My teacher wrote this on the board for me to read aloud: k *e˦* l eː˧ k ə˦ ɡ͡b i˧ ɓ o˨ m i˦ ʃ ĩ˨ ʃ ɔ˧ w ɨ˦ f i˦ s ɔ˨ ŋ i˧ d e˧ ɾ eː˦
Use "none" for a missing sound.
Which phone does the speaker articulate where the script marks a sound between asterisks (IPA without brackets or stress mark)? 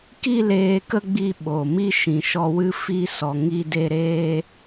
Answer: i˦